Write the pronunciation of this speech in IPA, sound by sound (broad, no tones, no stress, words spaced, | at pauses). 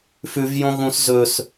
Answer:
fʉvjõ ɣũs zɵs